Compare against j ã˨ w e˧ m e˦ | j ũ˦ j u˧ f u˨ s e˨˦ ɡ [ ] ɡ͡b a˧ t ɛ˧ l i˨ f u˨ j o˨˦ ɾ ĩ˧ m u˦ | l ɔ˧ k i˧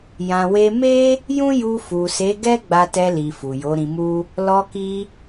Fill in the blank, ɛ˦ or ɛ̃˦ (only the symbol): ɛ˦